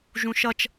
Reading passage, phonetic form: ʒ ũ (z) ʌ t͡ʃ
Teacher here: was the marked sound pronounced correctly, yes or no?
no